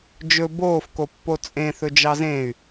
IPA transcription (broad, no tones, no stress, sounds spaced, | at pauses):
d͡ʒ ɵ b oː f k o pː o t͡sʼ ẽ θ ɵ d͡ʒ ɑ z ẽ y̯